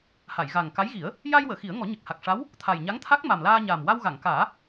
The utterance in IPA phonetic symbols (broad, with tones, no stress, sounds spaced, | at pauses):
h a˨˩˨ j ɣ a˨˩ ŋ k a˧˥ j ɣ i˨˩˦ ə̯ | j a˧ j w əː˨˩˨ x i˨˩˦ ə̯ ŋ ɔ˨˩˦ ɲ ə˨˩ k̚ h a˨˩ k̚ ʂ a˧˥ w | t̪ʰ a˨˩ j ɲ a˧˥ ŋ t̪ʰ a˦˥ k̚ m a˨˩ m l aː˧ ɲ aː˨˩ m w a˧ w ɣ a˨˩˨ ŋ k aː˨˩˦